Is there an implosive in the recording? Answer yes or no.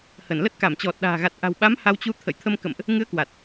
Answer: yes